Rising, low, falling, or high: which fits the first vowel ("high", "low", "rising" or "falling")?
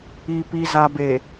low